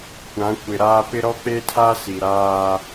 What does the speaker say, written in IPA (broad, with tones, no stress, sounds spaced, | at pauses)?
kʷ ã˨˦ kʷ ɪ˨ ɾ aː˦ p ɪ˦ ɾ ɔ˦ k͡p e˦ tʰ a˦ s i˨ ɾ aː˦